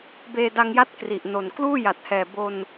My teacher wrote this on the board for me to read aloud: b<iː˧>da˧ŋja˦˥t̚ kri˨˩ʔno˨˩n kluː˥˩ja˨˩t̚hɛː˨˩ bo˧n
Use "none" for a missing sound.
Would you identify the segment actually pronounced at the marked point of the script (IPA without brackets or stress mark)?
eː˧